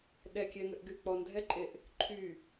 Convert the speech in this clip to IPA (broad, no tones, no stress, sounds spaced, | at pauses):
ɗ ɛ kʲ ɛ ŋ ʏ ʔ ɡ y k͡p ɔ n dʱ ɛ ǃʼ e ʔ | ǃʰ y